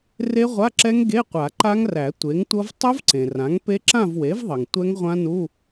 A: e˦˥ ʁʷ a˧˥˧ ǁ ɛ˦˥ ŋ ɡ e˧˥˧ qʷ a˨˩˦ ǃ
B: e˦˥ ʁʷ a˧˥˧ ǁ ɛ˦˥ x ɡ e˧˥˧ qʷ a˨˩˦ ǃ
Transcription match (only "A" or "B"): A